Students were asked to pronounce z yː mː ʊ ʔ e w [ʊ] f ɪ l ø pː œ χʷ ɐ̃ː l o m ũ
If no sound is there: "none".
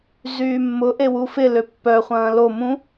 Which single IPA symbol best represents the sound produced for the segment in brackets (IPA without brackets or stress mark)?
u